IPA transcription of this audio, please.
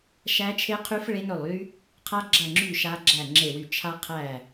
ʃ æ˦˥ t͡ʃʰ e˦˥ qʰ y˦˥ f ɭ e˦˥ n ɵ˦˨ lˠ y˦˥ | qʰ a˦˥ ɡ͡ǁ ɐ˦˨ ŋ͡ǁ y˦˨ ʃ a˦˥ ɡ͡ǁ æ˦˨ ŋ͡ǁ e˦˨ w y˦˨ t͡ʃʰ a˦˥ qʰ æ˦˨

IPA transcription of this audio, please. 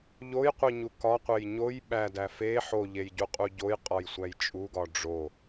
ʎ o j qʷ i ɲ u k ɒ qʷ e j ɲ o j ɓ æ d æ f e ħ o ʎ e j ɟ u qʼ u ɟ o j qʼ ɒ j sʷ æ j t͡ʃʼ u ɡ ɒ ɖ͡ʐ o

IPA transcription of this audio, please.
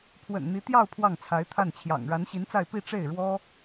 pʰ w ə̰˨˩ n n̪ i˧˥ t̪ j ɑ˥˧ ʊ̯ pʰ w ɑ˥˩ ŋ t͡sʰ a˧˥ ɪ̯ t̪ʰ a˥˩ n t͡ɕʰ j ɑ̰˨˩ ŋ ɻ a˧˥ n ɕ i˧˥ n t͡s a˥˧ ɪ̯ p i˥˧ ʈ͡ʂ e˥˩ ɪ̯ ɻ w ɔ˥

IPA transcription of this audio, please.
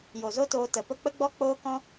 j o˨ z o˦ t oː˧ t ə˨ p ə˧ k͡p ə˦ ɡ͡b ɔ˦ k͡p oː˦ k ɔ̃˦

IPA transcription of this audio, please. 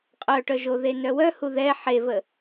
qʼ œ ʈ œ ʒ o ð e n œ w œ h u ð ɛ ħ e v ə

